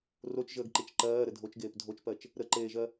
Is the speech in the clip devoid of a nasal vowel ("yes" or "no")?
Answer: yes